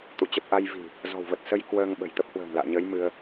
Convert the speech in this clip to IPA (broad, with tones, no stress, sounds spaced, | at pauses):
t̪ ṵ˧˨ t͡ɕ ə˨˩ p̚ ʔ a˧ j v i̤˨˩ | z ɔ̤˨˩ w v ə˨˩ t̚ s ə˧ j k w əː˧ ŋ ɓ ə̤˨˩ j t̪ ə˦˥ p̚ h w ə̤ː˨˩ ŋ l a̰ː˧˨ ɲ əː˨˦ j m ɨ˧ ə̯